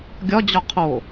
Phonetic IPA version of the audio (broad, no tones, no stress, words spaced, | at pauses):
ɡʲɒd͡ʑɒ qʰo